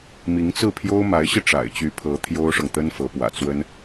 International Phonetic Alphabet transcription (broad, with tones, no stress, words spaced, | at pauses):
mi˧˥ŋt͡sɹ̩˥˩pʰjo˥ʊ̯ ma˧˥ɪ̯ɕi˧ ʈ͡ʂa̰˨˩ɪ̯t͡ɕy˧˥pʰɤ˧˥ t̪ʰjo˥ʊ̯ʂɤ˨ŋt̪ə˥nfɤ˧˥ pwä̰˨˩t͡swə˥n